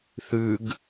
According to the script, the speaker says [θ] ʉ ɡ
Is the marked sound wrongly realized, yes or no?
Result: no